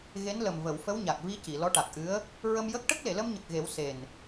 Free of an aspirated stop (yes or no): yes